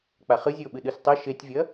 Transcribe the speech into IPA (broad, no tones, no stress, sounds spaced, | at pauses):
k͡p a χ ɨ zʲ ɨ o̯ ɓ ɨ ɗ ɨ s tˤ ɐ ʃ e tʲ vʲ ɐ